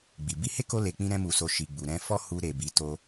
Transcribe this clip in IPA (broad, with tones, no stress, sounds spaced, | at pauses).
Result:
ɡ͡b i˨ b i˧ h e˦ k o˧ l e˨ k͡p ĩ˧ ɾ ɛ̃˦ m u˧ s o˧ ʃ i˨ ɡ͡b u˨ ɾ ɛ̃˧ f ɔ˦ h u˧ ɾ e˨ b i˨˦ t o˦